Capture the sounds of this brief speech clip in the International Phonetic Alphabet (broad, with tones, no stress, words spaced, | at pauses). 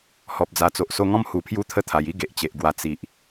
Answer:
hɔ˨p̚d͡za˨˩t͡so˨ʔ so˧ŋɔ̃˦mhu˨˩ pʰju˦t̪ʰə˦ t̪ʰa˨˩ji˦ ɡe˨ʔt͡ɕe˨ʔɡwa˧ t͡si˨ʔ